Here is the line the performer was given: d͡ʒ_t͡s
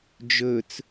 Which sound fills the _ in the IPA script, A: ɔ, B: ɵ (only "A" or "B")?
B